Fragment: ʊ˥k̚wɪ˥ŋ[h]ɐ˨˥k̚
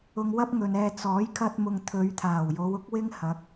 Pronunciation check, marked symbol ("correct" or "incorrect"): correct